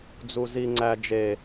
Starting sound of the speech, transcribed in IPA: d͡z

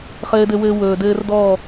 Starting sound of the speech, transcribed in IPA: χ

